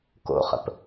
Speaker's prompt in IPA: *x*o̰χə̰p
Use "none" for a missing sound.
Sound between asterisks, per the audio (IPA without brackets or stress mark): k